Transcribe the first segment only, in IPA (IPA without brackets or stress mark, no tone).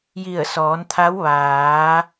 j